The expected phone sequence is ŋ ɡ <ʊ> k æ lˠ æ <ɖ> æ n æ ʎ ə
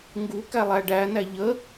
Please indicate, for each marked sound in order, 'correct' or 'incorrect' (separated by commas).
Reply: incorrect, correct